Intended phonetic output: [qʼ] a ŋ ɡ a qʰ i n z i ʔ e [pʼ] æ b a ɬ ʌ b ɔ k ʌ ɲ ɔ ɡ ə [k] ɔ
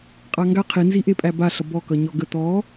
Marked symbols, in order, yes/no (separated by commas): yes, yes, no